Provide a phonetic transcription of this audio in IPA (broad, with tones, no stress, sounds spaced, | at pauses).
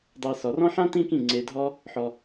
dˤ ɛ˧ s ɔ˨˩˦ r ɔ̃˥ ħ ã˥ t ĩ˥ k ĩ˥˩ ŋ͡ǀ e˧ dʱ ɔ˥ | ħ ɔ˧